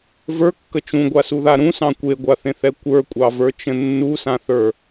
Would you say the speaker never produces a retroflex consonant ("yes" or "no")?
yes